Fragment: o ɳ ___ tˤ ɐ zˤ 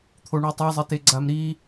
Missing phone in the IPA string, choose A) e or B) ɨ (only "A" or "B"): B